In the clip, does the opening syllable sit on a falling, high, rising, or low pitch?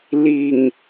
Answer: low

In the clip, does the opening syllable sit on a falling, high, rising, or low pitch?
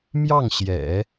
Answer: falling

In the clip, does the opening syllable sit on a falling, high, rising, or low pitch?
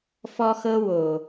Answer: high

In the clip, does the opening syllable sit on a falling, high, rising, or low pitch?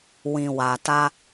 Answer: low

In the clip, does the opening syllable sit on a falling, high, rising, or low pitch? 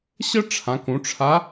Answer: high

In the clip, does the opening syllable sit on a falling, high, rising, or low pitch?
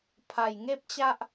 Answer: low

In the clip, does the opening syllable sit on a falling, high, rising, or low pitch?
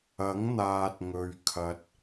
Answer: rising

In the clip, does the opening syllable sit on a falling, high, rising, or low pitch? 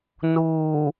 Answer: low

